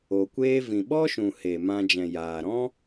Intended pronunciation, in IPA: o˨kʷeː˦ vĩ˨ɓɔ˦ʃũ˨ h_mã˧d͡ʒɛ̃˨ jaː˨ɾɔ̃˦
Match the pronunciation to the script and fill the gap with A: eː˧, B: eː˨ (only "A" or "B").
B